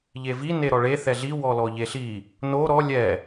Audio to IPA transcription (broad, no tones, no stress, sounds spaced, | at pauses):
ʎ e v i n e ɾ ɔ ɭ e θ ɛ ɮ i w ɔ l ɔ ʎ e ɬ i | n o ɾ ɔ lʲ ɛ